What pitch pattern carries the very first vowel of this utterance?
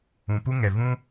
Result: low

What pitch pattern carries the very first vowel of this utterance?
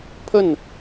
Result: falling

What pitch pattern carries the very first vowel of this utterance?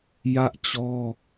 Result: high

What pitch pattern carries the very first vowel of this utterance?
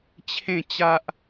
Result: falling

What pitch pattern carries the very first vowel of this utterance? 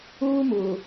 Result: high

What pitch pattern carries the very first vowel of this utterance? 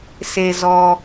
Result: low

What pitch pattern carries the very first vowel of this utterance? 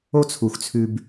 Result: high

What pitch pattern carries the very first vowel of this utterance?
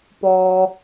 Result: low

